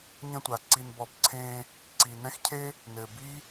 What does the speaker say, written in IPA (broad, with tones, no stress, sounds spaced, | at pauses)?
ɲ ə̃˧ tʷ a˨ ǀ i˧ n b ɔ˧ b ǀʰ ẽ˧ | ǀ i˨ n ɛ̃˦ x cʰ e˦ | n ɘ˨ b i˦